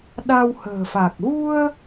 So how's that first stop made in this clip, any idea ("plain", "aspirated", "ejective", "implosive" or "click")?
implosive